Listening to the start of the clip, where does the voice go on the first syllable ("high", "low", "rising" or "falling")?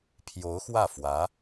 rising